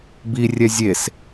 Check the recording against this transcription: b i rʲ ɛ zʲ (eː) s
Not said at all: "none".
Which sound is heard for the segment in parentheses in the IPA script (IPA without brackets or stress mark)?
e